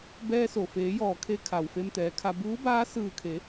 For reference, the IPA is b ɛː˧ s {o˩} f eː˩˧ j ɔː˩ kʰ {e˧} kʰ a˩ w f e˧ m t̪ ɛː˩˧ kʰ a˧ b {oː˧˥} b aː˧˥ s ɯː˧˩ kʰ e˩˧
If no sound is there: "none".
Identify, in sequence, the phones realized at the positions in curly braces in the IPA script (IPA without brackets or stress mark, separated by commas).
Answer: o˩, e˧, uː˧˥